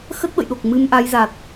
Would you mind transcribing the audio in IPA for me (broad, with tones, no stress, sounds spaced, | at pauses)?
x ə˦˥ t̚ ɓ ə̰˧˨ j ɗ o˨˩ k̚ m ɨ˧ m ʔ a˨˦ j z a˨˩ t̚